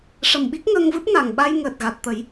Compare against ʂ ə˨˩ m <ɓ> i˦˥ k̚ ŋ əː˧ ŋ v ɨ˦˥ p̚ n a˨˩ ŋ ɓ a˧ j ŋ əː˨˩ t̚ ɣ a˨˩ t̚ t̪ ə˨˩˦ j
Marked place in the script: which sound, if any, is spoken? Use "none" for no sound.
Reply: ɓ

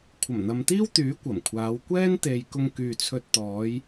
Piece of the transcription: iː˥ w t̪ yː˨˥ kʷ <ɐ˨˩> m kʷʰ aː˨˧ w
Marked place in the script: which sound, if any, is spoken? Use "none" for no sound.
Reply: ɐ˨˩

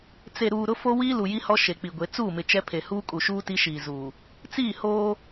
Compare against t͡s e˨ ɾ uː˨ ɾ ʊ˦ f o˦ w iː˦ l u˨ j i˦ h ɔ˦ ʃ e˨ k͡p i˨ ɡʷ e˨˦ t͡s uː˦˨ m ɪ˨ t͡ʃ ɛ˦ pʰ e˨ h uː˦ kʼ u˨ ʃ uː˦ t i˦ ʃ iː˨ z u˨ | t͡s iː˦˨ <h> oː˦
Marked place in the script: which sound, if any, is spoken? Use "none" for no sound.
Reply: h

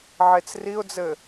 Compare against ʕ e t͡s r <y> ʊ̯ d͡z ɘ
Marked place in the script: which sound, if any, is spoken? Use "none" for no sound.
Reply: i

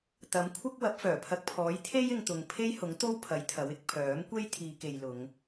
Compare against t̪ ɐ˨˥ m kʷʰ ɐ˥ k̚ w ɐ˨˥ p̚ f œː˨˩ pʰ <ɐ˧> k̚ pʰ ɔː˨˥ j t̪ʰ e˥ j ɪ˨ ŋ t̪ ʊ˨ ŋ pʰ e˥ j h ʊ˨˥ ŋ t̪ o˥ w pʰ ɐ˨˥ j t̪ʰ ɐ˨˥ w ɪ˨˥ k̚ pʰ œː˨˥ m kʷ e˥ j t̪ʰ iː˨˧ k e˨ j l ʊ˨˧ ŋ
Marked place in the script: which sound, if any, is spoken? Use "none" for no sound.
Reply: ɐ˧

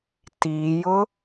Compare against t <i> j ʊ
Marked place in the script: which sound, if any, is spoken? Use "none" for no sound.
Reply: i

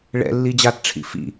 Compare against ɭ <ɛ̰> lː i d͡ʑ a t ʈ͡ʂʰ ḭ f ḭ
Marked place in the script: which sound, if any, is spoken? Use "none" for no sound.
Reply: ɛ̰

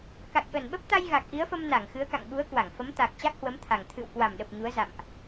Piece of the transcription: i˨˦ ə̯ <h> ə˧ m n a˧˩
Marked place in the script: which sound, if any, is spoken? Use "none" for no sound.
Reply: f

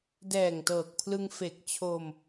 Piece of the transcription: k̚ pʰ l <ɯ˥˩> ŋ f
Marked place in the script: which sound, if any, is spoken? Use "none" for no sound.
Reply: ɯ˧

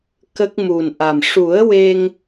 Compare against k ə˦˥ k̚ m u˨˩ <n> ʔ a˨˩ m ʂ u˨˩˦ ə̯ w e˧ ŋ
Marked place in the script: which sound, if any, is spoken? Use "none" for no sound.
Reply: n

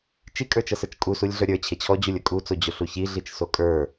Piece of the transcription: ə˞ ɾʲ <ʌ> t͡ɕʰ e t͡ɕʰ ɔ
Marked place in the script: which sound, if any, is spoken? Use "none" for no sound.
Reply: ə˞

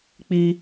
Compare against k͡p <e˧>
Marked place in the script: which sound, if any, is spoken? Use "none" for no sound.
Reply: i˧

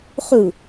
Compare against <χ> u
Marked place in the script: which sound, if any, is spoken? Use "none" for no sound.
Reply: χ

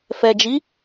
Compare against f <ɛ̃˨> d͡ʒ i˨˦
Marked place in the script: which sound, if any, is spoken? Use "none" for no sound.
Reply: ɛ˨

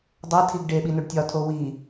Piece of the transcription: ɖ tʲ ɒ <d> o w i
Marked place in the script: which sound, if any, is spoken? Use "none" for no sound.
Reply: tʰ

